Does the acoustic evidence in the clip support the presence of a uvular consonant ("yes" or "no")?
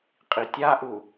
yes